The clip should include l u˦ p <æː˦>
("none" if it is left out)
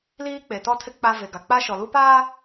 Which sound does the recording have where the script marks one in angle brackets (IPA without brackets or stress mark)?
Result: aː˦